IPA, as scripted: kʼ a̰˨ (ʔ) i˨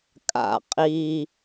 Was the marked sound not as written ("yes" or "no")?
yes